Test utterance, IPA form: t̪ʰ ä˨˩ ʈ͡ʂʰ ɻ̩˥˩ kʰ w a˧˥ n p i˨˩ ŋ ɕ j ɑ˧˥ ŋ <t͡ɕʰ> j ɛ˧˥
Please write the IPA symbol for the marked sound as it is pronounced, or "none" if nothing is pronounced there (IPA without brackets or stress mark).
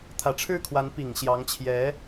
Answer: t͡ɕʰ